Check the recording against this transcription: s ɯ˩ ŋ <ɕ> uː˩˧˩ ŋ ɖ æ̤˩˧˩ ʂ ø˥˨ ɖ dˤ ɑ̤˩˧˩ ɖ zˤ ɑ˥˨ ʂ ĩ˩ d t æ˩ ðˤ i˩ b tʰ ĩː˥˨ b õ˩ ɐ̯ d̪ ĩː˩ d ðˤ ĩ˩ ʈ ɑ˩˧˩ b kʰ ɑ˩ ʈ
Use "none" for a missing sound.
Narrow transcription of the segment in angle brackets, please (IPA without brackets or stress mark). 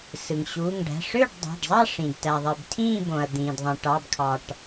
ɕ